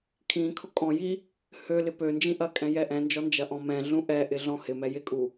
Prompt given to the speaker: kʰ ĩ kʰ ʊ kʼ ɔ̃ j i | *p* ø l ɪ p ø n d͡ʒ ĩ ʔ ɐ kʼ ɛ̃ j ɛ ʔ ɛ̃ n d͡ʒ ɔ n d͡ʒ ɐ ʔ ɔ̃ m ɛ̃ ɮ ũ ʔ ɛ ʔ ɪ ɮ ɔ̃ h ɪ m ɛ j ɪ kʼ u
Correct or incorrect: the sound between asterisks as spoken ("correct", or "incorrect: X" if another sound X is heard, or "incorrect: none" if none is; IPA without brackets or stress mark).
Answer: incorrect: h